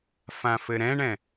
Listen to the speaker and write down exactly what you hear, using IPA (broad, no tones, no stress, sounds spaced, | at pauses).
f ã f ɘ ɾ ɛ̃ ɳ ɛ̃